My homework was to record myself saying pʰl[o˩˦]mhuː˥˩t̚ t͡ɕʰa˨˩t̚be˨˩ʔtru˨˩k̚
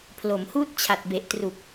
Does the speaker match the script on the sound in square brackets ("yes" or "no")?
yes